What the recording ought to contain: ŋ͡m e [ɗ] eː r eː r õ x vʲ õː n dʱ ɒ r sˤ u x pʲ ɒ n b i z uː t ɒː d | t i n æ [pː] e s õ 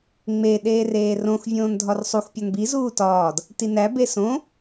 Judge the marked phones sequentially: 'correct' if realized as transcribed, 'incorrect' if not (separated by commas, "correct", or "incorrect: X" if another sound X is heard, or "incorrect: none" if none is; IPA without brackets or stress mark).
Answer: correct, incorrect: b